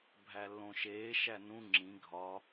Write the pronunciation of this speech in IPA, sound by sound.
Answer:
bʱ æ lː õ ʃ eː ʃ æ n ũ ŋ͡ǁ ĩ ɡʱ ɒ

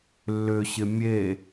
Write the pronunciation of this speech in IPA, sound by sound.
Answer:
lː ʏ ɕ ɪ mʲ e

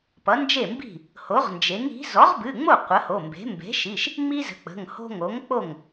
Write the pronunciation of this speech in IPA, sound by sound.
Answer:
p ʌ˩˥ n d͡ʒ e˥˩ m b i̤˥˩ | h o˩˥ ʁ n d͡ʒ e˩˥ ŋ i̤˩˥ z ɔ˩˥ ʁ b ɨ˩˧˩ ŋ͡m o˥˩ qʷ ə˩˥ h o˩˧˩ m b e̤˩˥ m b e̤˩˥ ʃ i˩˧˩ ʃ | ŋ͡m i˦ z ə̤˩˥ k͡p ə̤˩˧˩ ŋ h o̤˦ ŋ o˩˥ ŋ k͡p o˥˩ ŋ

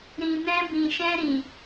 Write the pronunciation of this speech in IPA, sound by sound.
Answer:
ɾ ĩ˨ n ɛ̃˧ b ĩ˨ ʃ ɛ̃˧ ɾ ĩ˨

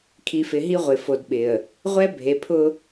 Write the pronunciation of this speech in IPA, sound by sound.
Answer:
kʰ i˨ f ɪ˨ ɦ i˦ ʁʷ ɪ˨ f o˨ d ɓ ɪ˨ ə̯ | ʁʷ ɛ˦ bʱ e˨ pʰ ʊ˦

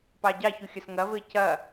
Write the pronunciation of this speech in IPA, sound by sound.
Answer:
p ɑ ɟ ɑ ç u xʲ ɐ s ŋ ɐ v ɘ c ɐ

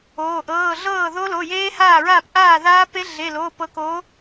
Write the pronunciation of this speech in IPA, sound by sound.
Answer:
oː˩˧˩ ʔ ɤː˩˧˩ ɮ ɤː˥˩ ð o˦˥ l o˩˧˩ j eː˦˥ h aː˥˩ ɹ aː˥˩ p ʔ aː˥˩ ð aː˦˥ p e˦˥ ɮ e˩˧˩ l oː˩˧˩ p ɤ˨˥ k oː˨˥

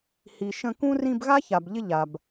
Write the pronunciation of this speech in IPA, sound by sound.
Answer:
h i˨ ʃ ə̃˦ k ũ˥ r ĩ˦ b ɣ a˥ ç a˨ b ʎ ɪ˦ ʎ a˨ b

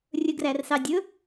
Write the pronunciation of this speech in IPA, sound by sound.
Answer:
rʲ ɵ ɡ r æ r s ɑ dʲ ɵ

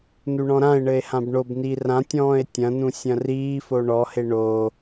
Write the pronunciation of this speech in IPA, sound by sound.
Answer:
n u ɳ ɔ̃ ɾ ã e̯ ɳ ɘ e̯ h ã b ɳ o b n i r ã tʲ ɔ̃ː e̯ tʲ ɐ̃ n ũ sʲ ɐ̃ r iː f o ɳ ɔ h e ɳ o

